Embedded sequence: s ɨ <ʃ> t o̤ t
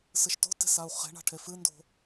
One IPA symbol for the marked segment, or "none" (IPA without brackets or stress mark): ʃ